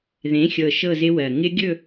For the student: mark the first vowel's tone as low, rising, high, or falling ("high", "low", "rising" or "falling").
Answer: rising